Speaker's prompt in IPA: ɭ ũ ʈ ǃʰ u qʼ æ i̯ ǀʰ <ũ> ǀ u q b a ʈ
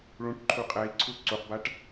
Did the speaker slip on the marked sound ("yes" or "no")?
yes